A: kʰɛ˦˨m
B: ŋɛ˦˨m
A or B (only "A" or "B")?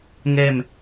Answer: B